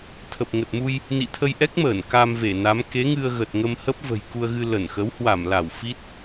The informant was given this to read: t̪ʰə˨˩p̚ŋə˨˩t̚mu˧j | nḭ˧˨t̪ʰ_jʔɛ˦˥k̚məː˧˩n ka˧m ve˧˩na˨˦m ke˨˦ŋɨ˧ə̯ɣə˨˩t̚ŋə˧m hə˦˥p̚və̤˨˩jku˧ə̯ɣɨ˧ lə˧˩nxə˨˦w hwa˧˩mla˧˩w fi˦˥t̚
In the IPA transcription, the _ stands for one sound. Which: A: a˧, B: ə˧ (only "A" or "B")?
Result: B